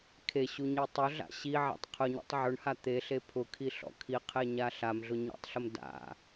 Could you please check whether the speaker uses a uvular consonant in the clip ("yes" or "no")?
yes